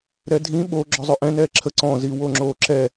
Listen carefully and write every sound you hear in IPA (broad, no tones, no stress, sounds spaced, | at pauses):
ɾ ɛ dʱ ĩ ɓ o ɡ͡ǁ ɔ zˤ ʏ ʔ ɛ̃ n ɛː ǁʰ ə ǀ ɔ̃ z i w o ŋ͡ǁ oː ǁ ɛ